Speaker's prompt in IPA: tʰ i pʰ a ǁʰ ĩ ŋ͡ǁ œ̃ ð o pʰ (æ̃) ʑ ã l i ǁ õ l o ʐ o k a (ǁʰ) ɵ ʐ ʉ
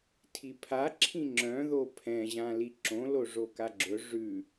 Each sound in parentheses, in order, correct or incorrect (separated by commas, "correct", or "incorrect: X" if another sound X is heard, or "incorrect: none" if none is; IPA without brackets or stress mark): incorrect: ɛ̃, incorrect: ɡ͡ǁ